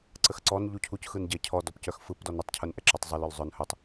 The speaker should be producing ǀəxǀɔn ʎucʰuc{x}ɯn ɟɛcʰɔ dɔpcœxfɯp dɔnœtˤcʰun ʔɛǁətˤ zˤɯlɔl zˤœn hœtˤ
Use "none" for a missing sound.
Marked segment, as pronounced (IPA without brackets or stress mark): x